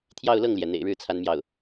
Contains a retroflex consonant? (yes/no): yes